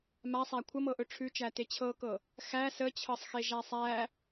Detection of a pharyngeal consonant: absent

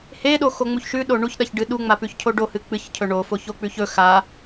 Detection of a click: absent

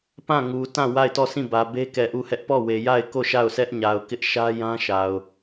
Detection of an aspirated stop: absent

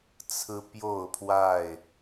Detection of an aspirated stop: present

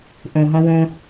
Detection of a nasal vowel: present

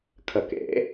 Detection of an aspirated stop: present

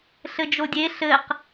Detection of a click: absent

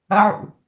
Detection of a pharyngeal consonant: present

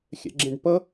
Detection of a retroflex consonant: present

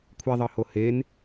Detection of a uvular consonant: absent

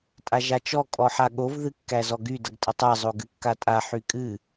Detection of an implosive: present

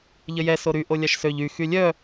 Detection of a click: absent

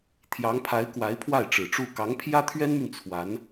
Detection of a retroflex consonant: present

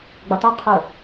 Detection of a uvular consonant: present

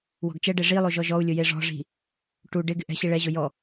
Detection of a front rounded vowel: absent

